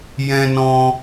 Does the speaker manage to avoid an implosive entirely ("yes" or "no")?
yes